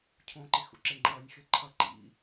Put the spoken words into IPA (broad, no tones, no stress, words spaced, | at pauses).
cʰõǃixṵǁe ŋ͡ǃʌːnʲxe ǃʰʌ ǃḭ